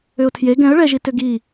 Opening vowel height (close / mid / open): close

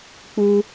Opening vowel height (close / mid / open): close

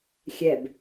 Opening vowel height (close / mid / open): mid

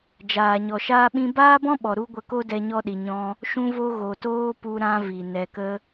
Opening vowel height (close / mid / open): open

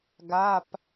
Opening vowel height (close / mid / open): open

